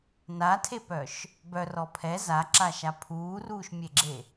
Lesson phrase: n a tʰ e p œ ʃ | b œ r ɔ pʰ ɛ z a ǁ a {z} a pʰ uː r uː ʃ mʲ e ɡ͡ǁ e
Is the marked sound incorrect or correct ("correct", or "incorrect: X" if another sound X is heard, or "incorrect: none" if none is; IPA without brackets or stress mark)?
incorrect: ʃ